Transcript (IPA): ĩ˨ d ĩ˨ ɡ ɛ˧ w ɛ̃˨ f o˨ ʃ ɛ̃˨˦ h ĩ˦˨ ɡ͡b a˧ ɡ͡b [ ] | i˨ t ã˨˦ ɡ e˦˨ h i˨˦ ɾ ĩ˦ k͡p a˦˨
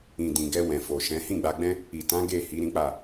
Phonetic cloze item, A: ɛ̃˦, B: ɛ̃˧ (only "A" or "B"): A